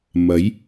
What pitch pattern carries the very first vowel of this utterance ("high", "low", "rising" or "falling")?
rising